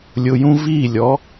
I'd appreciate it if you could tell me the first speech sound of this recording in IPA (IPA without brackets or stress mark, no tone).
lʲ